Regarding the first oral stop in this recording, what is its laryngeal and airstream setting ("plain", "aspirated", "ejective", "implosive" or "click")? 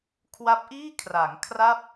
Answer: aspirated